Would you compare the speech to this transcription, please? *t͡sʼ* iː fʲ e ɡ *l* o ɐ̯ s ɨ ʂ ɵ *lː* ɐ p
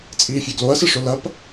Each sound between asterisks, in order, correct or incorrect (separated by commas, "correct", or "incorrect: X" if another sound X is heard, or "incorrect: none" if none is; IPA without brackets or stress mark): correct, correct, incorrect: l